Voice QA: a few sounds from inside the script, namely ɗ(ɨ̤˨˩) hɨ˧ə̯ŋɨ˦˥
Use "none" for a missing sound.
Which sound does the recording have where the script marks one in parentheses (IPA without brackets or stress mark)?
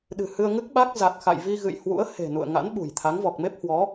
ɨ̤˨˩